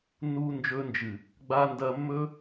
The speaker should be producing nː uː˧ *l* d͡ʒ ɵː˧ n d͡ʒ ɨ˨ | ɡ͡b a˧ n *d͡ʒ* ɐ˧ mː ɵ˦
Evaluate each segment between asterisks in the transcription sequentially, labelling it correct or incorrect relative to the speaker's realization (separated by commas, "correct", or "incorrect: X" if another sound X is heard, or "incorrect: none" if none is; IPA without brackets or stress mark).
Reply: incorrect: n, incorrect: d